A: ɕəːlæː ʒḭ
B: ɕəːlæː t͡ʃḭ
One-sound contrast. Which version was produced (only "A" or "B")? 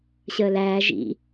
A